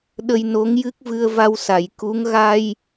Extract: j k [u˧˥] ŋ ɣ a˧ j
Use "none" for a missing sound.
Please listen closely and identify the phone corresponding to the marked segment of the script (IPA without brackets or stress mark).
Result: u˧˥